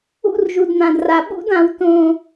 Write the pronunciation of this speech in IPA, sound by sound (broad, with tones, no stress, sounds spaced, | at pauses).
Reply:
ṵ˦ r ʒ u˨ d n̪ ã˨ d r a˨ ɓ ṵ˦ d ã˨ w t õ˨